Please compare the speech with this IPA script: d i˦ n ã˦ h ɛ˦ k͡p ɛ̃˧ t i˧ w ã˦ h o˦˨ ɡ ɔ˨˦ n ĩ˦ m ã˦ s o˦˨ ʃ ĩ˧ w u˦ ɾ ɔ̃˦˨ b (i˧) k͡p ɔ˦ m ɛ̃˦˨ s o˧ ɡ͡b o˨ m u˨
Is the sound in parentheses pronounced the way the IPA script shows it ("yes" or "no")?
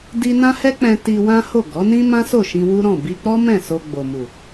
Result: yes